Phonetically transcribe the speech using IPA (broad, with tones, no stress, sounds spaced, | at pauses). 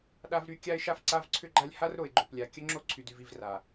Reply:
ɗ a˦ v ɾ y˦ kʲ a˦ ɪ̯ ʃ a˦ f ǀ a˦ v ǀʰ ʏ˦ ɡ͡ǃ a˦ lʲ h a˦ r ɾ o˨ ɪ̯ ɡ͡ǃ o˨ p lʲ a˨ kʲ ə˦ ŋ͡ǁ o˦ ǀʰ y˨ d y˨ v i˦˨ v r a˨